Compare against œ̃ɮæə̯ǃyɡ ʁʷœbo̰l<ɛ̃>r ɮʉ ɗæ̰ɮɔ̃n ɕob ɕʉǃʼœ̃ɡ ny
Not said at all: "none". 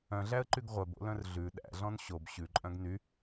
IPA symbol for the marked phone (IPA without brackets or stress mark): œ̃